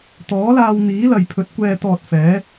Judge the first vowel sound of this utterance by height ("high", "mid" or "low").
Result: mid